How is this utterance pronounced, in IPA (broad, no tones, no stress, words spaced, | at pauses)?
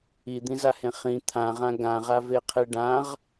id̪ĩzahẽ χĩ t̪ʰãʁã ɡãʁaveqʰe ɖãʁ